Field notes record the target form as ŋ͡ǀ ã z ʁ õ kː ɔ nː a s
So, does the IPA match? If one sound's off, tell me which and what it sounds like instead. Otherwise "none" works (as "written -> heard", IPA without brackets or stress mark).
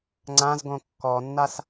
ʁ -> ɡ